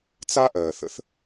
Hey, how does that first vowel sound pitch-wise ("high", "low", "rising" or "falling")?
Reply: high